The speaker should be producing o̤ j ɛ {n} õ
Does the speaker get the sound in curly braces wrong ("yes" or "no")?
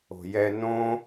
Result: no